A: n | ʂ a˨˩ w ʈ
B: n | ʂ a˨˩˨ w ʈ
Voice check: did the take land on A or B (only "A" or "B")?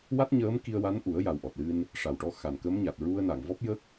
A